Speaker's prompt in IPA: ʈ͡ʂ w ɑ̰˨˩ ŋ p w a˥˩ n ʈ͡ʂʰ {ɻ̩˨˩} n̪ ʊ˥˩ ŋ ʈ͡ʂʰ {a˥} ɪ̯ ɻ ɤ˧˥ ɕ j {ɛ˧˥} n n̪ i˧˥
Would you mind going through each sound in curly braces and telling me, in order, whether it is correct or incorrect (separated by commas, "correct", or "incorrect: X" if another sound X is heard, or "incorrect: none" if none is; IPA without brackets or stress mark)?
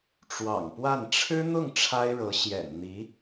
incorrect: ɻ̩˥, correct, incorrect: ɛ̰˨˩